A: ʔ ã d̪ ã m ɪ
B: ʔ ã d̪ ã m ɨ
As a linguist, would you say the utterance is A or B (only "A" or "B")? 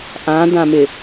A